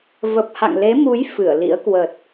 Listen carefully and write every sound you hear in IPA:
və˨˩p̚ha̰˧˨ŋle˨˦mu˨˦j fɨ˧˩ə̯lḭ˧˥ə̯kwə˨˩t̚

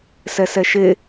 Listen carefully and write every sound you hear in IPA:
sɛsɛʃe

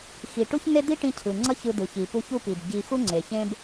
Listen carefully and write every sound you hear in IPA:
xi˩ʈu˥çn̪e˥ d̪i˥ʈĩ˧ cʰɯ˩ ŋ͡ǀʌ˥çɯ˧d̪ɯ˩ çi˩pu˧ç u˥pi˩bɟi˧ xu˥ŋ͡ǀe˩ çẽ˥b

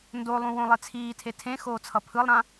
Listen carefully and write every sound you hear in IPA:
ndolˠũ wõlˠet͡sʰiːtʰe tʰẽ xoːt͡sʰʌpʰɯlˠɾã

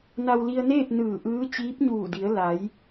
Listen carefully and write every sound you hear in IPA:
na˧wli˧ə̯neː˥˨p̚ nɯː˧˩ʔɯː˧˥ t͡ɕiː˧˥p̚ɲuː˧˩di˩˧ə̯ la˩˧j

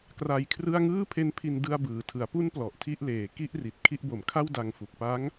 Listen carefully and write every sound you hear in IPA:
kra˧jkʰrɯ˥˩a̯ ŋɯː˥˩pʰe˦˥npʰi˧n dɯ˧a̯bɯː˩˦tʰɯ˩˦a̯ pu˦˥n plɔ˨˩ʔtʰi˥˩ʔleː˨˩ ki˥˩ʔri˨˩t̚ kʰi˦˥ʔbo˨˩mkʰa˥˩w da˧ŋfu˨˩k̚ pa˦˥ŋ

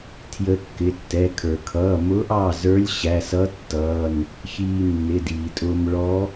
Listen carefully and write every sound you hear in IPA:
tʰjə˧˥ kːɪ˩˧˩tːɛ˩˧˩kʰə˞˩ kʰʌː˩˧˩mʊː˧˥ʔɑ˩˧˩ zə˞˧˥lʲɕæ˩˧˩sʌ˧˥ tːʌː˩˧˩n | çiː˧nːɪ˩˧˩diː˩tʼʊː˧m ɭɔ˧˥

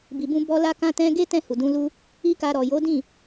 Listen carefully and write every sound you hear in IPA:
bi˨bũ˧bɔ˧ la˦kã˦tɛ̃˦ ɡe˦tɛ̃˦˨hu˨dũ˨˦ lu˧ | i˦ka˧ ɾɔ˨ jo˨˦dĩ˦˨

